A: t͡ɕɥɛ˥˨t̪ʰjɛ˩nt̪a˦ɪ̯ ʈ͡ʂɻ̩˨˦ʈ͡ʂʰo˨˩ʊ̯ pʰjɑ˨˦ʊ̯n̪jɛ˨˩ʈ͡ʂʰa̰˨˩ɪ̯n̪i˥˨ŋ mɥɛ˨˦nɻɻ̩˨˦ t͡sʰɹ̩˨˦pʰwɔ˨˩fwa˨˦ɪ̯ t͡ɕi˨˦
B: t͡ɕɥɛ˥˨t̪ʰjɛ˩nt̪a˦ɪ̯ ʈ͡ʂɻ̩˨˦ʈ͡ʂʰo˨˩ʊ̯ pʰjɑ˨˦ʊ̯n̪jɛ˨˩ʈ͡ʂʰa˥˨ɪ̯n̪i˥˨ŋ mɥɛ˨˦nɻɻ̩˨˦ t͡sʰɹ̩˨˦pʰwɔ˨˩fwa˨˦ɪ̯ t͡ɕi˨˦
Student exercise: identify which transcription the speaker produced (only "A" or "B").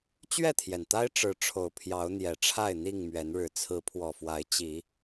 B